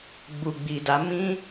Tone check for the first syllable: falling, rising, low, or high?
low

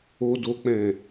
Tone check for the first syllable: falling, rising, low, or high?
high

